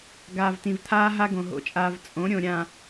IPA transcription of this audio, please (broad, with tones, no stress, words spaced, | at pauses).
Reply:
ɡaː˨v tĩ˨vt̪ʰaː˦ ɦa˦ɡõ˨ ɦo̰˨t͡ʃʼaː˨v t͡sʼõ˨˦ɾʲõ˨ɾʲã˨